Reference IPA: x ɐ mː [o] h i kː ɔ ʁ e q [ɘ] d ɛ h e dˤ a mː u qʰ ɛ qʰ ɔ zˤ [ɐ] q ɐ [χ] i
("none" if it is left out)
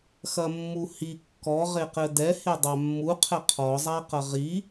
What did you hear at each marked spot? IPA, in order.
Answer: u, ɘ, a, ʁ

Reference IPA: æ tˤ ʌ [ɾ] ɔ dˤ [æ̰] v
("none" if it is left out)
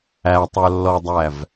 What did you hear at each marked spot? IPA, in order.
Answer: lː, æ

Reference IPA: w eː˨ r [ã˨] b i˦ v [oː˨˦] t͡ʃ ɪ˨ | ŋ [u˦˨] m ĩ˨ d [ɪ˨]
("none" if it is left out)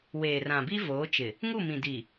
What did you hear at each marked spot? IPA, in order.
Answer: ã˨, oː˨˦, u˦˨, i˨

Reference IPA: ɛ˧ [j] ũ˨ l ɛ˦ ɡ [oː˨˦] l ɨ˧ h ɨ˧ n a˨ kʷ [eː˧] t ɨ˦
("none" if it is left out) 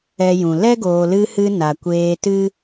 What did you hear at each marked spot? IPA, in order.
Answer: j, oː˨, eː˧

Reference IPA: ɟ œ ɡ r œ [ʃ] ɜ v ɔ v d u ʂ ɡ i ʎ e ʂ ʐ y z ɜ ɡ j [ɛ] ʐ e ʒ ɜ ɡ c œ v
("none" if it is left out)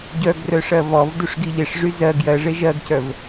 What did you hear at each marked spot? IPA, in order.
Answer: ʂ, ɜ

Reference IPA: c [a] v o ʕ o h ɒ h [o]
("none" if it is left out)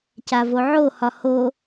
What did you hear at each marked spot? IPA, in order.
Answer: a, o

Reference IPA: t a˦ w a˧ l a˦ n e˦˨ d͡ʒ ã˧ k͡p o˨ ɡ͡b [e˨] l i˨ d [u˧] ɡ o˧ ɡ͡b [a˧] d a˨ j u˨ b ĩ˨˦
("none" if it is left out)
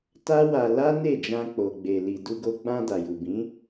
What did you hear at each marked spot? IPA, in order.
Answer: e˨, u˧, ã˧

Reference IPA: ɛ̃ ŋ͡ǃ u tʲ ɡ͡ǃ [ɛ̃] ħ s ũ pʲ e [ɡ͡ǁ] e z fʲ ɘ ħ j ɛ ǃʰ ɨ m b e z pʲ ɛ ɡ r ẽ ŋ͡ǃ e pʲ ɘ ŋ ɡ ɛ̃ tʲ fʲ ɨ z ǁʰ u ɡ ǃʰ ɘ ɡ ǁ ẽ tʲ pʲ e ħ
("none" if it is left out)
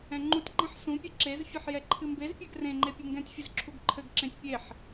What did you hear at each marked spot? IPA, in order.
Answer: ẽ, ǁ

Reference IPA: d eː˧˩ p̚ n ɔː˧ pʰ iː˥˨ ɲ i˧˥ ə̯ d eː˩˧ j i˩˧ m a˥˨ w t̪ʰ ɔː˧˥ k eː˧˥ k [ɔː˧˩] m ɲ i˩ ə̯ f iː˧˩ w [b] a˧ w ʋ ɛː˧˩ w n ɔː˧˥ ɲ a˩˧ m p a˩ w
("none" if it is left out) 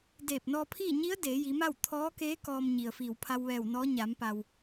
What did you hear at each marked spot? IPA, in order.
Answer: ɔː˧, pʰ

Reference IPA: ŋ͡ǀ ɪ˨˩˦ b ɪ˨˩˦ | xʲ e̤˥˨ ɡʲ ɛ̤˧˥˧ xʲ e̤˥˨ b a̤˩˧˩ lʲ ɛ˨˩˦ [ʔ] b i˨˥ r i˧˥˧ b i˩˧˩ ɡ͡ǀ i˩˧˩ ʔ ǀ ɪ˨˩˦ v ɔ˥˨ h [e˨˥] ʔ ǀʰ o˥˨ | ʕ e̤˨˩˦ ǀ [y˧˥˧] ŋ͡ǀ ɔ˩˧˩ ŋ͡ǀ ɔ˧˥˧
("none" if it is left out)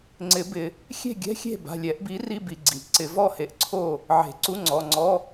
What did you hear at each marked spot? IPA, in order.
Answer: ʔ, e˨˥, u˧˥˧

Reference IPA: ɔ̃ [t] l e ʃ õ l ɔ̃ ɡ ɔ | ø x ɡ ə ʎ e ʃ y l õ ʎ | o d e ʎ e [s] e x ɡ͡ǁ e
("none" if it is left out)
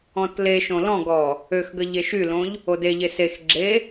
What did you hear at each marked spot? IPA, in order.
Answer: t, s

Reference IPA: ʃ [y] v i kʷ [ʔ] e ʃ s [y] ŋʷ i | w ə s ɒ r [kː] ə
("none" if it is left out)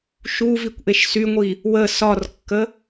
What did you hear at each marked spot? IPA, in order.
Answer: u, ʔ, y, kː

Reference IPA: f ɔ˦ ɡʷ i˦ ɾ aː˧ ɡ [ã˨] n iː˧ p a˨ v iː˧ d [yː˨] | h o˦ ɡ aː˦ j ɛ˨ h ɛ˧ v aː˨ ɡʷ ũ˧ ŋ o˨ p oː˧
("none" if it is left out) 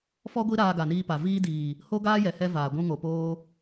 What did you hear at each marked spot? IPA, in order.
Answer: a˨, iː˨

